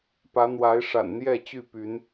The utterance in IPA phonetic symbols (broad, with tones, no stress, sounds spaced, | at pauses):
p ä˨˦ n̪ w a˨˦ ɪ̯ ʂ a̰˨˩ n n̪ j ɛ˥˨ t͡ɕ y˥˨ p y˨˦ n